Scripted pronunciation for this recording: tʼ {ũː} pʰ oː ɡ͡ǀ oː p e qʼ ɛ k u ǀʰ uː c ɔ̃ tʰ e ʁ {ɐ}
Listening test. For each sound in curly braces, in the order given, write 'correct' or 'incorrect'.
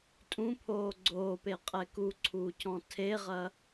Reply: incorrect: ũ, correct

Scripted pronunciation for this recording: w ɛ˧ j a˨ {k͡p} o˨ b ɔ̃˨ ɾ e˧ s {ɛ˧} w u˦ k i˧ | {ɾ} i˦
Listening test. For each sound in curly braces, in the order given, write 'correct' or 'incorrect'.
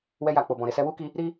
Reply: correct, correct, correct

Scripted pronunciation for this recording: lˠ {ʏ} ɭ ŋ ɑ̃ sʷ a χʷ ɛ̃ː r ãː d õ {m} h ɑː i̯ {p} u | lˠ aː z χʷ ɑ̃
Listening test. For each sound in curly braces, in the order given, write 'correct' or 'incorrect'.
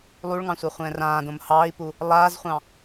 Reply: incorrect: u, correct, correct

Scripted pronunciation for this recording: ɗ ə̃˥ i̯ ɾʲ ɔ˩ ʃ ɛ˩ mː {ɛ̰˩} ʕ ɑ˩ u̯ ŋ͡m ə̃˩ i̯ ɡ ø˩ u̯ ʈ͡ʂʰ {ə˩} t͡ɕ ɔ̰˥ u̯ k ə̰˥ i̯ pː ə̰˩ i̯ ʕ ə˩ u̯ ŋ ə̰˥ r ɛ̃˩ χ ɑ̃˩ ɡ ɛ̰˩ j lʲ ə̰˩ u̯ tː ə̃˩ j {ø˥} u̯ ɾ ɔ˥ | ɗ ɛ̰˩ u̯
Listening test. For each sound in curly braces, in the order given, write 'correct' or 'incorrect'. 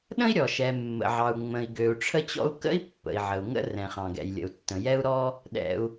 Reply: incorrect: ə̰˩, incorrect: ə˥, incorrect: ɛ˥

